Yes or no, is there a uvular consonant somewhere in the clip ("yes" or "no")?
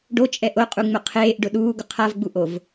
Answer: yes